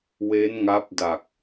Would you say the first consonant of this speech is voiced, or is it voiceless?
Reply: voiced